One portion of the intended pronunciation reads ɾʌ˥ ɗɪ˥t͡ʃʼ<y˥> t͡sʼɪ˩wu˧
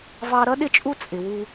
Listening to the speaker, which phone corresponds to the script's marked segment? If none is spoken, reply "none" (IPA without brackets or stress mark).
u˥